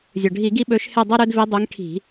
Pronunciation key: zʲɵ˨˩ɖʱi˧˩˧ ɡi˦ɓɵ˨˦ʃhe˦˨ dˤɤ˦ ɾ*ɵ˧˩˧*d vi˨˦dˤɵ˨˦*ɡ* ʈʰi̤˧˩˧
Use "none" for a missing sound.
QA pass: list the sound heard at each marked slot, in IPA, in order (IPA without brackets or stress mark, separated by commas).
ɵ˦, ŋ